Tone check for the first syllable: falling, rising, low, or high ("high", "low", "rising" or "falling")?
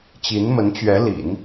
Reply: rising